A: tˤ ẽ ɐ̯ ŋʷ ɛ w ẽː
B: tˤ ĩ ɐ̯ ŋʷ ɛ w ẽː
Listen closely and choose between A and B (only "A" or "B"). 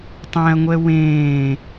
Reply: A